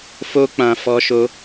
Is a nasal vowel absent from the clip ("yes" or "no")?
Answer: no